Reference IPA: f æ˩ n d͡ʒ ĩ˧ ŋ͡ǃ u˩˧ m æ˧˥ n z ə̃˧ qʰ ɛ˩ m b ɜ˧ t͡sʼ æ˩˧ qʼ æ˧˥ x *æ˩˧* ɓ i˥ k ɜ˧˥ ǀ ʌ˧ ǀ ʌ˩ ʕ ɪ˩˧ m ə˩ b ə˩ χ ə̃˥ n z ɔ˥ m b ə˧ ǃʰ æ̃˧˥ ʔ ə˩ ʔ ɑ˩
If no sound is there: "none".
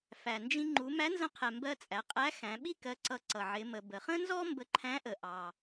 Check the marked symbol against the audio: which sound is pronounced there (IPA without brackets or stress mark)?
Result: æ̃˩˧